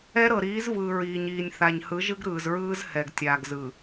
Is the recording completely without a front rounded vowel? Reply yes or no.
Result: yes